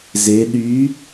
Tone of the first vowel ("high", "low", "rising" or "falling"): rising